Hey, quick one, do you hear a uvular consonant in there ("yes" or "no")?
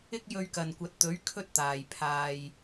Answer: no